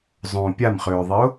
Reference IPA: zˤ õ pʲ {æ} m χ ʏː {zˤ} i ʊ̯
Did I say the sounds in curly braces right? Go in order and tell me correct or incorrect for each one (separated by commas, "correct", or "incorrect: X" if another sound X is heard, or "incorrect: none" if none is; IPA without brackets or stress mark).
incorrect: a, incorrect: ðˤ